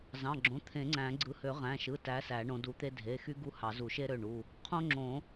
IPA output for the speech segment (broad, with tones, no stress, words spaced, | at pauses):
zɑ̃˩˧˩ɡ͡ǁõ˩˧˩ t̪ʰẽ˨˩˦ŋ͡ǀæ̃˨˩˦ɡ͡ǀɯ˨˦ hø˨˩˦ʁæ̃˩˧˩ʃɯ˩˧˩tæ˨˦ sæ˨˩˦ɳõ˨˦du˨˦ t̪e˥ dʱe˩˧˩xy˥ ɡu˥hɑ˨˩˦ zu˨˩˦ʃe˥ɾø˩˧˩ɳu˩˧˩ | qʰõ˥ŋ͡ǁõ˨˩˦